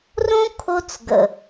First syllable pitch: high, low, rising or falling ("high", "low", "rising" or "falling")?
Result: high